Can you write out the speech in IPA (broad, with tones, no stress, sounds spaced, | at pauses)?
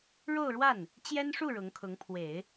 ɻ o˥˧ ʊ̯ ɻ w a˥˩ n | t͡ɕ j ɛ˥ n ʂ u˥˩ ɻ ʊ˧˥ ŋ kʰ ʊ˧˥ ŋ pʰ w e˨˩˦ ɪ̯